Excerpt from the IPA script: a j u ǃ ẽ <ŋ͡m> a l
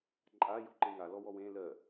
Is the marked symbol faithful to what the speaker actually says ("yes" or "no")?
no